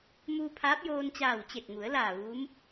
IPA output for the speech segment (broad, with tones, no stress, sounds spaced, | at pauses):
m uː˧ pʰ aː˧˥ p̚ j oː˧ n t͡ɕ aː˧˩ w t͡ɕ e˧˩ t̚ ŋ u˩˧ ə̯ l aː˧˩ ʋ uː˧˥ m